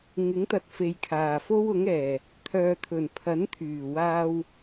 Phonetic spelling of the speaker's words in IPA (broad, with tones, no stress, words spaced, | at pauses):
ŋɪ˨˥ŋt̪ɐ˨t̚ fe˨jkʰaː˨˩fo˥w ʊ˨˥ŋɛː˨˩ | t̪ʰœː˨t̪ʰɵ˨˩npʰɐ˨˥n t̪ʰyː˨˩waː˧w